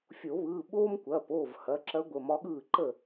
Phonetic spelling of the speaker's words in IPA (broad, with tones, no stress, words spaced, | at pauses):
fʲo˨˩˦βɯː˩˧˩ ɓoː˥mkʷɐː˩˧˩poː˥˩v hɐ˩˧˩ǁɐ˧˥ ɡʷə˩˧˩mɒ˧˥ɠɯː˥˩ǃə˥˩